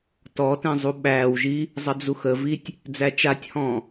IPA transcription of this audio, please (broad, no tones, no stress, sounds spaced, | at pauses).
t ɔ t ɛ̃ zˤ u ɓ æː w ʒ i | zˤ ə d͡z u x ə v i tʲ | d͡z æ t͡ʃ a tʲ h ɔ̃ː